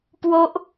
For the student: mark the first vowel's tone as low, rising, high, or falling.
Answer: high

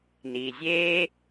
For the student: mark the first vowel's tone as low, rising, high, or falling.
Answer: low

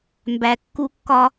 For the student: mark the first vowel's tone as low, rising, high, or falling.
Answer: low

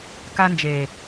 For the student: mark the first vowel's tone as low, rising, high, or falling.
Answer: high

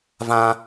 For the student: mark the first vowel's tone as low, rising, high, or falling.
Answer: high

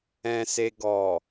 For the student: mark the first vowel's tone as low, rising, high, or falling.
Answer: low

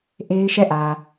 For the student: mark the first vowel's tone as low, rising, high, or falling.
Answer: high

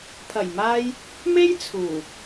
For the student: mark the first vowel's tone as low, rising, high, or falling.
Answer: low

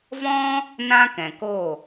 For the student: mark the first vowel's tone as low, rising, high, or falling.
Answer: high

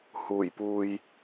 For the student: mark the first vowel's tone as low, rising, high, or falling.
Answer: low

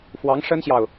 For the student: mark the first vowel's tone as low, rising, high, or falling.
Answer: rising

